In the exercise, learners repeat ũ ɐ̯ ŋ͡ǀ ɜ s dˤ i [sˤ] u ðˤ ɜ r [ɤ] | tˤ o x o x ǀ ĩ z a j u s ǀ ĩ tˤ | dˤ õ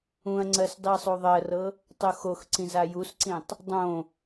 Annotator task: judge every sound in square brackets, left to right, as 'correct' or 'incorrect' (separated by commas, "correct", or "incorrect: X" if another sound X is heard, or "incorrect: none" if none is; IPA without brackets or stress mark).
correct, correct